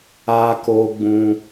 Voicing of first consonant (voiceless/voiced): voiceless